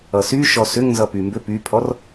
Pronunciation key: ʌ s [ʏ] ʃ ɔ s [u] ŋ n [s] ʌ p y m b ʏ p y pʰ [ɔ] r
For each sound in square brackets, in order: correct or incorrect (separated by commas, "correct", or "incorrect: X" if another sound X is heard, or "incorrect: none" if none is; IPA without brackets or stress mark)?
incorrect: y, incorrect: ʏ, incorrect: z, correct